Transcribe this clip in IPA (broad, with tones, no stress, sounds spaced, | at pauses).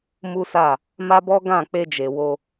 m u˦ s a˦˨ | m a˦ b ɔ˦ ɡ ã˦˨ k͡p e˧ d͡ʒ e˨ w o˧